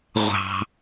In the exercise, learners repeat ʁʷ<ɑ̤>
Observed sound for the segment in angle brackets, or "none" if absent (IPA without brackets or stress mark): ɑ̤